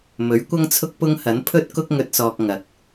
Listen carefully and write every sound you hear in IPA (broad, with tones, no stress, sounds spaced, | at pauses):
m ɵ˨˥ ɥ kʷ ɐ˥ ŋ t͡sʰ ʊ˥ k̚ p ʊ˥ ŋ h ɐ˨˥ n pʰ ɵ˥ t̚ k ʊ˥ k̚ ŋ ɵ˧ t̚ s ɔː˧ k̚ ŋ ɐ˨ k̚